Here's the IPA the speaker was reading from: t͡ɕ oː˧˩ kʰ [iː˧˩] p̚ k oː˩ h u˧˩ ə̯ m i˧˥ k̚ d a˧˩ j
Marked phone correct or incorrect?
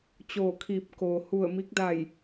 correct